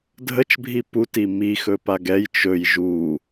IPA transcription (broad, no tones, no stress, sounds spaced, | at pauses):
dʱ ə t͡ʃ bʱ i p u t i m i x ɵ p a ɡ ɛ j t͡ʃ ɵ j ʒ u